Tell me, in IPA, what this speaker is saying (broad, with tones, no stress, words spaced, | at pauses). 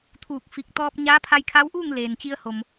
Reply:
t̪ʰuː˧˩k̚ fi˧k̚ t̪ɔː˧p̚ ɲaː˧˥pʰa˧jkʰa˧˥wʔuː˥˨ŋ leː˩nt͡ɕi˧ə̯ho˩m